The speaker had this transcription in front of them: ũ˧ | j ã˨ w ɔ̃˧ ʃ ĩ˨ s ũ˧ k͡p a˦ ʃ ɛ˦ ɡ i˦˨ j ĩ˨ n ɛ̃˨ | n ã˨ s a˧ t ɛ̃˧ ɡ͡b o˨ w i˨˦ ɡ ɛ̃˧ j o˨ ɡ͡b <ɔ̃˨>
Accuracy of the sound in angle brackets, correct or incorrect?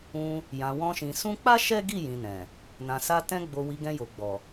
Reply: incorrect